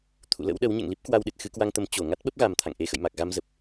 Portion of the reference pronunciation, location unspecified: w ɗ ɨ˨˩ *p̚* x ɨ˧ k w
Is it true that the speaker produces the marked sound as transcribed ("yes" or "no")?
no